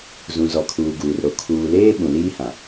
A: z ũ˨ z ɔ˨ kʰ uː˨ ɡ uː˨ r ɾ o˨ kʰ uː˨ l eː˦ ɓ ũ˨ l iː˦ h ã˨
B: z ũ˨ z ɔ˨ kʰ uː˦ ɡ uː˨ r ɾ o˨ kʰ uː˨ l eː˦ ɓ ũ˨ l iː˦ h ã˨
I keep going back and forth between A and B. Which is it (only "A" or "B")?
A